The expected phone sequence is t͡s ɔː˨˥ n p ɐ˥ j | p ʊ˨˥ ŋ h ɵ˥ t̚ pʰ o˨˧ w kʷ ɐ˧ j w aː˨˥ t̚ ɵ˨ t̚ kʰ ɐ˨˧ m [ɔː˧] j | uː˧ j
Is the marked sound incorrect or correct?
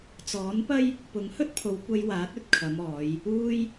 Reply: incorrect